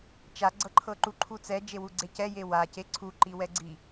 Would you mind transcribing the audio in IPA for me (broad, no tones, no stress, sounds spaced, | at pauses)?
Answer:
t͡ʃ a ɡ͡ǀ ɤ ǃʰ ɤ ǃ u ǃʰ u t͡s ɛ d͡ʒ e w u ɡ͡ǀ e c ɛ j e w a c e ǀʰ u ǃ i w ɛ ɡ͡ǀ i